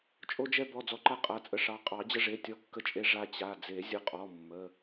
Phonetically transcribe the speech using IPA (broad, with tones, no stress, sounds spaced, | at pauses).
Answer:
t͡ʃʼ o˧ d͡ʒ ɛ˧ b ɔ˩˧˩ d͡z ɔ˧ ǃ a˧ qʼ a˩˧˩ t͡sʼ ə˧ ʂ ɑ˩˧˩ qʼ ɑ˨˩˦ d͡ʑ ə˧ ʐ e˩˧˩ tʲ ɔ˧ kː ə˧ t͡ʃʼ e˧ ʐ a˧ t͡ɕ a˩˧˩ d͡z e˨˩˦ zʲ ə˩˧˩ qʼ ɔ˩˧˩ mː ə˩˧˩